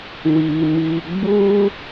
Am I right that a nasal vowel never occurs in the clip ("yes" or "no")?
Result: yes